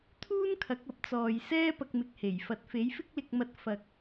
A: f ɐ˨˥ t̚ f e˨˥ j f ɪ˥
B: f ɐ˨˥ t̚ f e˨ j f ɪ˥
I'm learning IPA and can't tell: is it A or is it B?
A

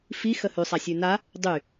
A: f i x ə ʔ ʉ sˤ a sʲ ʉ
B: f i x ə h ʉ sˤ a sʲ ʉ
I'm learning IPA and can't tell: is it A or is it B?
B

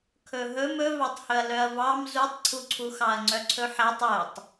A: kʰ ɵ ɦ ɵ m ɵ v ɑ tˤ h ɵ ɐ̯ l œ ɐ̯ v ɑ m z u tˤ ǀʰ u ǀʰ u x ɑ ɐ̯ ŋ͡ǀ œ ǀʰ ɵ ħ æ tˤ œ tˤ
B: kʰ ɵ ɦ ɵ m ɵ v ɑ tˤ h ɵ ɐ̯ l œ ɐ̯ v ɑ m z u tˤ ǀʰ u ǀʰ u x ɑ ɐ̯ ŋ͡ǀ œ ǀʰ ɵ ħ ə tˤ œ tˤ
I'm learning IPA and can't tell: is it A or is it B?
A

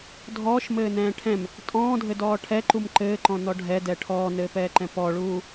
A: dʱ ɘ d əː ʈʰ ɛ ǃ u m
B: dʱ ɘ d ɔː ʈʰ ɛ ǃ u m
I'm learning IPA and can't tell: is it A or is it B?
B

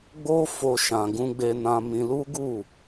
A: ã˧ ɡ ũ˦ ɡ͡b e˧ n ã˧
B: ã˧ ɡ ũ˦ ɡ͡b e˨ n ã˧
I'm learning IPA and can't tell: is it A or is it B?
A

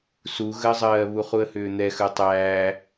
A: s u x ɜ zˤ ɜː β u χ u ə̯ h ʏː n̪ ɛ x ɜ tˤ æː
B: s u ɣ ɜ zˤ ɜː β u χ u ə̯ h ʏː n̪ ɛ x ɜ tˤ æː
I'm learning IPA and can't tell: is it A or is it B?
B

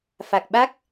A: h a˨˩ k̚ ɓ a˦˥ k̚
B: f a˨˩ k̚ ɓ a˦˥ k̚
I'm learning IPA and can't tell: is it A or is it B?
B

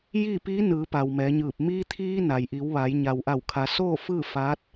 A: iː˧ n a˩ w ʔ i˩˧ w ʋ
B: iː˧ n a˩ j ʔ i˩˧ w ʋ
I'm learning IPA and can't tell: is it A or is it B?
B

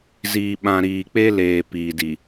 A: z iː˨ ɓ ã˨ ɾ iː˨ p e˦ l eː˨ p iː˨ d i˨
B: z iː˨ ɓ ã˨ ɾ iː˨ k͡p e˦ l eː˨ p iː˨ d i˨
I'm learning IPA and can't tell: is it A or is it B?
B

